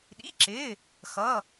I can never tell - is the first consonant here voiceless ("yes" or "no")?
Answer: no